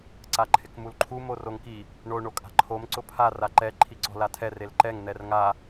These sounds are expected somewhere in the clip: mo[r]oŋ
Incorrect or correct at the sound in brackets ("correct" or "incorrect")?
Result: correct